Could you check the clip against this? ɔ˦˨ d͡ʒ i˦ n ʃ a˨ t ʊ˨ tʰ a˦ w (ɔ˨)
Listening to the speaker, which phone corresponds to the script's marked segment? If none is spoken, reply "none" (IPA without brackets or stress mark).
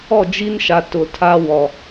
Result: ɔ˨